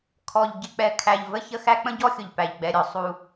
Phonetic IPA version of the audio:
kʰ ɔ˨ ʎ ɟ ɪ˨ k͡p ɛ˨ kʰ æ˨ ʎ v ə˦ ç ə˦ x æ˦ k͡p ə̃˦ ɟ ɔ˦ xʲ ʊ˨ ʎ p æ˨ ʎ ɡ͡b ɛ˨ ɾʲ ɔ˨ sˤ u˦

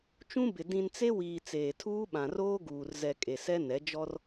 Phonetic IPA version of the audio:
t͡ʃ ũ˦ b ɪ˨ d ĩ˨ n t͡s e˦ w iː˨ t͡s eː˨ tʰ uː˦ ɓ ã˨ r oː˦ ɡ uː˨ r z ɛ˨ kʼ e˨ s ɛ˦ n ɛ˨˦ d͡ʒ ɔ˦ r

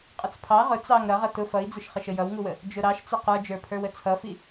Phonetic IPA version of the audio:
qʼ ə t͡s pʰ ɑ ʁ ʊ t͡s ɑ ŋ ɾ ʌ ʁ ʌ t ʊ f ʌ i̯ d͡z ʊ ʃ χ ɪ ʃ ə j ʌ w ŋ u w ə | d͡ʒ ʊ ɾ ɑ ʃ t͡s ɪ q ə˞ d͡ʒ ə˞ pʰ ə˞ w ə t͡sʰ ʌ f i

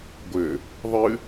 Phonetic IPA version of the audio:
ɡʷ ɘ | ðˤ ɨ

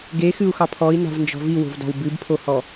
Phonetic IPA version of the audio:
ɡ e x ɨ u̯ x ɑ pʰ ɔ i̯ n a̤ v n d͡ʒ ɔ̤ v i w o̤ v d ɑ̤ w b ɨ b pʰ o h ɔ

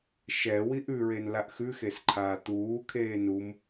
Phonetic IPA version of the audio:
ʃ ɛ w i ʔ ʉ ɹ e n l a ʔ x ʉ x e s ǃʰ aː t̪ uː kʰ eː n u m

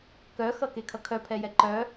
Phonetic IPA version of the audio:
k œ x ʌ k e kʰ ʌ kʰ œ pʰ ɛ j ɛ ǃ œ

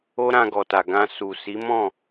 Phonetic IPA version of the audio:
o˦ ɾ ã˧ ɡ ɔ˨ t a˨ ɡ ã˧ s u˨ s i˨˦ m ɔ̃˦˨

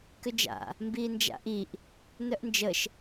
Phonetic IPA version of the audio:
k ʏ d͡ʒ a̰ | m b iː n d͡ʒ a̰ ʔ i ʔ | n œ ʔ n d͡ʒ ə ʃ

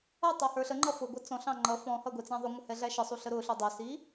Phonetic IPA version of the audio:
ʌ tˤ æ h ə˞ ɬ ə ŋ͡ǃ ʌ f ʊ ɡʷ ʌ t͡s ɔ̃ ɬ ɑ̃ ŋ͡ǃ ʌ f ɔ̃ h ʌ ɡʷ ɛ t͡s æ̃ ðˤ ʊ ŋʷ ə h ɛ ɮ æ ʃ ə sˤ u ɬ ə ɾ ʊ ɬ u dˤ ʊ s i

